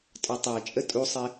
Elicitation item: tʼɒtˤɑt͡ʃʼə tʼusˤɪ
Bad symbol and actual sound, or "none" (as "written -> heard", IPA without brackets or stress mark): none